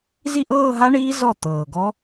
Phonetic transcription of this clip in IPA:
z i˥˩ ʔ ɤː˥˧ ɦ a˦˥ ɳ iː˦˥ z ɔ˥˩ t̪ ɤː˨˩ ɡ ɔ˦˥

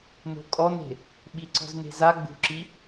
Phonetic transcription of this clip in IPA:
n o̤ kʼ ɔ n e̤ | ɓ i ǀ ɔ̤ z n e̤ z a ɡ͡b ṳ ǁ i

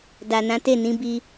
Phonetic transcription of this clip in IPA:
d a˨ n ã˨˦ t e˦˨ n ĩ˨˦ b i˧

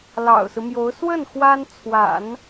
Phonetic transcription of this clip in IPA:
l ɑ̰˨˩ ʊ̯ s ɹ̩˦ m j o˧˥ ʊ̯ s w ə˥˩ n x w a˥ n t͡sʰ w a̰˨˩˦ n

